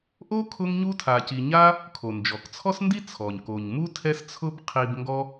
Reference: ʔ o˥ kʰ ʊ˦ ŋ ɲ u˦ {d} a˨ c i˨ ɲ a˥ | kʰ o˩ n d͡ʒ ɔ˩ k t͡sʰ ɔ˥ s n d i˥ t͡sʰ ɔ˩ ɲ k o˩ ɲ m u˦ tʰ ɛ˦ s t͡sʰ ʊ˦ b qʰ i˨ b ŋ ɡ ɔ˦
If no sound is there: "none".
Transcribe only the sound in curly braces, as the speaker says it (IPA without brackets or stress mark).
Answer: tʰ